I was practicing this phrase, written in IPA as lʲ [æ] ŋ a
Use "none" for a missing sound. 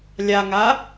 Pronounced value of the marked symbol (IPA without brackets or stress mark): a